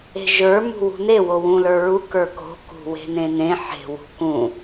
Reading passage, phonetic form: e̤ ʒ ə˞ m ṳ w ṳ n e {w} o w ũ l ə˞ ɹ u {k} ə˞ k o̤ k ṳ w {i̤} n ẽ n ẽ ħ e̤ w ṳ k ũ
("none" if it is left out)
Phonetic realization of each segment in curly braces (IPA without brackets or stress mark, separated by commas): w, k, e̤